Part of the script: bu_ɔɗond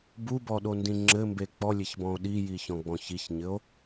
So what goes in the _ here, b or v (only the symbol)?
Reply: b